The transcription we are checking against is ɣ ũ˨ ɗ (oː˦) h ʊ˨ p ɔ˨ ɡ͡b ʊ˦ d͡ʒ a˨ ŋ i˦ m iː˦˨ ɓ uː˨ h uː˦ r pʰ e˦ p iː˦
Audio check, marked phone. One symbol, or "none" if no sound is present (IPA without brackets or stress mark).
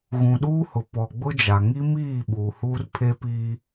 uː˦